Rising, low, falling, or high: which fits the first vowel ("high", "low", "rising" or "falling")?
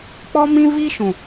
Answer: high